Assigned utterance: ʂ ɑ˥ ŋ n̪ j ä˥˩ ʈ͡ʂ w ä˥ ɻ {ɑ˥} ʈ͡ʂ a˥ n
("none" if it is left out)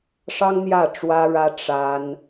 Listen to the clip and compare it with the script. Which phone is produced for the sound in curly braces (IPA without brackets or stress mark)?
ä˥